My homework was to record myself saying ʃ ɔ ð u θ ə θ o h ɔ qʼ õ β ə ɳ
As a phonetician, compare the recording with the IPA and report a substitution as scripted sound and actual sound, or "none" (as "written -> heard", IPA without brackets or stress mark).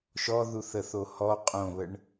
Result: none